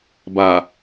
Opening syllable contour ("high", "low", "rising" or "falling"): low